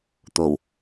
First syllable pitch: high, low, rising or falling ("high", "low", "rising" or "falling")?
low